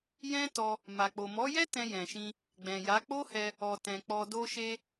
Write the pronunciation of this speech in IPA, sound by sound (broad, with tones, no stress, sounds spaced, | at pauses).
j ɛ̃˦ t ɔ˧ | m a˨ k͡p o˨ m ɔ˨˦ j ɛ˦ t ɛ̃˧ j ɛ̃˨ ʃ ĩ˧ | ɡ͡b ɛ̃˨ j a˨˦ k͡p o˦ h ɛ˧ | ɔ˨ t ɛ̃˨ k͡p ɔ˨ d o˧ ʃ e˧